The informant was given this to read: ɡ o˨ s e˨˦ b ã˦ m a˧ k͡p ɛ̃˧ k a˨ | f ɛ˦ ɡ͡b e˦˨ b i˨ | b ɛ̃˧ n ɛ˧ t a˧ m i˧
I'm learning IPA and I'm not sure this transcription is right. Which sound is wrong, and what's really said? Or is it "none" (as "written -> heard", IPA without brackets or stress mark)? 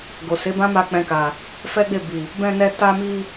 none